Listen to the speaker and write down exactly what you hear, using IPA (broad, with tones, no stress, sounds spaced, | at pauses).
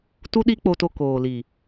t u˦ ɗ i˦ k͡p o˧ t o˧ k oː˨ l i˨